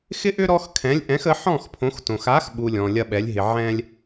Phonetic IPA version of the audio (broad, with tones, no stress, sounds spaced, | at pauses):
x ɪ˦ ʔ ʏ˦ ɾ ɔ˦ x kʰ ɛ̃˨˥ lʲ ʔ ɛ̃˨˥ x ə˨˥ ħ ɔ̃˥˨ x pʰ õ˨˥ x t õ˨ x a˨˥ x ɓ u˨ lʲ ɔ̃˨ lʲ ɐ˦ ɓ ɛ˨˥ lʲ ɦ ɪ˨ ʕ ɛ̃˦ lʲ